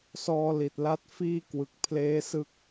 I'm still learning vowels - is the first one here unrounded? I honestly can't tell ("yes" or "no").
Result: no